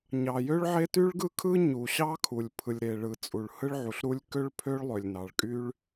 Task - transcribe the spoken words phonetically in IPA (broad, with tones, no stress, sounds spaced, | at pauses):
ɲ ɑ˩ j ø˥ ɭ ʕ e˥ t y˥ ɭ ɡ ɯ˥ kʰ ɯ˥ ɲ u˩ ɕ ɑ˥ kʰ u˩ lʲ pʰ ɯ˩ lʲ ɾ e˩ ɭ ɯ˩ t͡sʼ u˩ ɭ h ɯ˥ ɭ ʕ u˩ ɬ ɾ u˥ lʲ k ø˥ ɭ pʰ ø˥ ɭ lˠ ø˩ lʲ n ɑ˩ ɭ kʼ y˥ ɭ